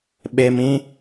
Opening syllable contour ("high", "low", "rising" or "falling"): low